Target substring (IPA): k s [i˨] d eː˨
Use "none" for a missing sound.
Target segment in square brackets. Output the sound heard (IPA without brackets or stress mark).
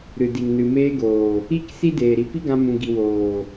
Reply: i˦